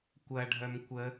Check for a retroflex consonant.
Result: present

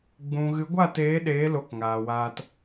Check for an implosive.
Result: present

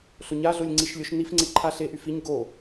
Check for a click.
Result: present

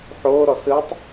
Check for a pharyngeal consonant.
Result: present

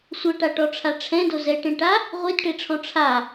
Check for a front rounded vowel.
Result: absent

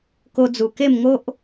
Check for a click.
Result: absent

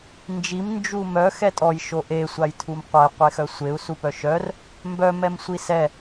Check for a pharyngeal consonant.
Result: absent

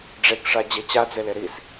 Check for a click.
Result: absent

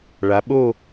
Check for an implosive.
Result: present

